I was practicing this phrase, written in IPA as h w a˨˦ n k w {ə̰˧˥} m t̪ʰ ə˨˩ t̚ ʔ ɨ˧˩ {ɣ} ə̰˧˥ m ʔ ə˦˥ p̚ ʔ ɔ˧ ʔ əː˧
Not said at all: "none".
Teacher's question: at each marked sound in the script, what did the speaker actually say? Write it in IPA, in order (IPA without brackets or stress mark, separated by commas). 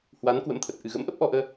ə̰˧˥, ɣ